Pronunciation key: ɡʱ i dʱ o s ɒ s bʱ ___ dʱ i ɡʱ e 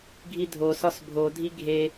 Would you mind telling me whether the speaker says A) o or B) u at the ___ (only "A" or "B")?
A